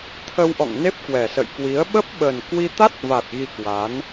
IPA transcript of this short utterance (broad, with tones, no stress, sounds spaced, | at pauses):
t̪ʰ ə˧ w ʔ ɔ̰˧˨ ŋ n e˦˥ p̚ k w ɛ˨˩ s ə̰˧˨ j k w i˨˦ ə̯ ɓ ə˦˥ p̚ ɓ ə˨˩ n k w i˧ t̪ a˦˥ t̚ v a˨˩ t̚ ɣ i˧ k w a˨˦ n